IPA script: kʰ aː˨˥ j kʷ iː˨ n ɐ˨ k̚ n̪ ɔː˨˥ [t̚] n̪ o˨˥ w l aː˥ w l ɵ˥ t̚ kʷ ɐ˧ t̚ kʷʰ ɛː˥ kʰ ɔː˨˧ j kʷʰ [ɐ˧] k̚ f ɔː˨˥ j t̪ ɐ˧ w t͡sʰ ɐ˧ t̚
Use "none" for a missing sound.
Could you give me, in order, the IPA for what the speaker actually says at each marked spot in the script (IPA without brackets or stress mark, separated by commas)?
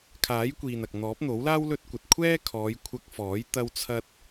p̚, ɐ˧